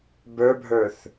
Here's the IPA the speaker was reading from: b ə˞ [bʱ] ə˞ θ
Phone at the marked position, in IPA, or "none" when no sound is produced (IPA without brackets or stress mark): bʱ